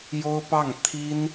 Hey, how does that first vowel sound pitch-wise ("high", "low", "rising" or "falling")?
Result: high